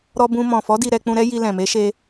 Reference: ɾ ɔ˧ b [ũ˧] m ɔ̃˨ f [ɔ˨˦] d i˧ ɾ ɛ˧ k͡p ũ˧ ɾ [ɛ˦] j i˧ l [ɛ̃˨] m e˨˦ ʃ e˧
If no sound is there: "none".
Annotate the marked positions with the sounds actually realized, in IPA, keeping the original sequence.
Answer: ũ˧, ɔ˨˦, ɛ˦, ɛ̃˨

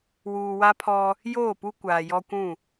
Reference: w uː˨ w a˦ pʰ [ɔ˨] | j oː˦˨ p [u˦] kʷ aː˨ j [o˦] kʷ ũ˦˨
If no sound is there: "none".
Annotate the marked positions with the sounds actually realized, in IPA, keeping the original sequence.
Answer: ɔ˦, u˦, ɔ˦

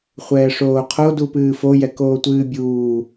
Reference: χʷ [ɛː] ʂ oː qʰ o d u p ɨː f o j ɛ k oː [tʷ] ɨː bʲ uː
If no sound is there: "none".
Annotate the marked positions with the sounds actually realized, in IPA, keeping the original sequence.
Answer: ɛː, tʷ

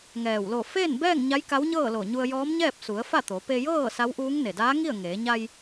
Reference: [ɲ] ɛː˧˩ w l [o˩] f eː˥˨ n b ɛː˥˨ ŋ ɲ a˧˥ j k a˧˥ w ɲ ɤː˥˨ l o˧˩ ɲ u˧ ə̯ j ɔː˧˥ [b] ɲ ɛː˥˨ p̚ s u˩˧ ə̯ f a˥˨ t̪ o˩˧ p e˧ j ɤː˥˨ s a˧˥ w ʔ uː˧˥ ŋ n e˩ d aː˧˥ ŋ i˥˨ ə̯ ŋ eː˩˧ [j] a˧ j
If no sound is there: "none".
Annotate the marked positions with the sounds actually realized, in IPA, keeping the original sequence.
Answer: ŋ, o˧˩, m, ɲ

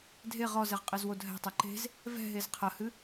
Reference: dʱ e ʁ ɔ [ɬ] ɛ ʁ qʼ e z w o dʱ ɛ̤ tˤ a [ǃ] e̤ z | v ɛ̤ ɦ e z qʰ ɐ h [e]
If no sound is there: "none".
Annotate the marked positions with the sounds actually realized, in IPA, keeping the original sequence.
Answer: z, ǃ, ɨ

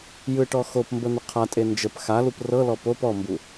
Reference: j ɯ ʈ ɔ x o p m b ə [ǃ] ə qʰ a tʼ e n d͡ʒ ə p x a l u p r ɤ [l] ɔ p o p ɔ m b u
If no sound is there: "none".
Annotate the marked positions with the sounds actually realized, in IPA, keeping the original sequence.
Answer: n̪, l

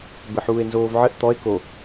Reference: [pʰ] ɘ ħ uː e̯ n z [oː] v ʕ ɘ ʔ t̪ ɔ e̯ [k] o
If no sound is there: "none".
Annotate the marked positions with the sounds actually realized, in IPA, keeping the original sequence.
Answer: b, oː, k

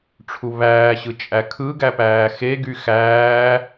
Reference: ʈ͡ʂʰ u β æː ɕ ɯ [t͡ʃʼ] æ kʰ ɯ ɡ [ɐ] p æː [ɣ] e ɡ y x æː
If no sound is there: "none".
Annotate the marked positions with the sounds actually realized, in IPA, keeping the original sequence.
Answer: t͡ʃʼ, æ, x

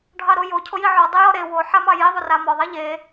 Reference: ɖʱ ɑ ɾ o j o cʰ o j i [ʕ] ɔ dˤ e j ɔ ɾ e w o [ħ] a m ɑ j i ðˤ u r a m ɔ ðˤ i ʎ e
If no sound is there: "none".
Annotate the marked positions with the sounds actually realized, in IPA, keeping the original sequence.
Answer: ʕ, ħ

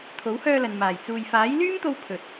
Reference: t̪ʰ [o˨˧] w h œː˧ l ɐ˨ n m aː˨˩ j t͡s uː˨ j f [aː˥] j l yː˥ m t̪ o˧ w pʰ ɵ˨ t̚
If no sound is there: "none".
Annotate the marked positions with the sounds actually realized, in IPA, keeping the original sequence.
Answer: o˨˥, aː˨˥

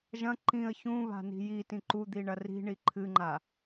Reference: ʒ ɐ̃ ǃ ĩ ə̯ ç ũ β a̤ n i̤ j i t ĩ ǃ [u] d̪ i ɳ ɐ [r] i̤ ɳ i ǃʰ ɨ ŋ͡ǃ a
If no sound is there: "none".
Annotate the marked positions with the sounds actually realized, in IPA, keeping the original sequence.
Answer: u, r

